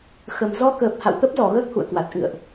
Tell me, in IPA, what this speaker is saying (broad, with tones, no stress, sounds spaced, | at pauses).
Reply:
x ə˨˩ m z ɔ˧ k əː˨˩ p̚ h a̰˧˨ w t̪ ə˦˥ p̚ z ɔ˧˩ ɣ əː˦˥ k̚ h ṵ˧˨ ə̯ k w a˨˩ t̚ ʔ ɨ̰˧˨ ə̯ ʔ